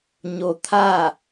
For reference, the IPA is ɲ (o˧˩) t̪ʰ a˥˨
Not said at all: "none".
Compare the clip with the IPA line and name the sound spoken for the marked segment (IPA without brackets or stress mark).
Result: o˧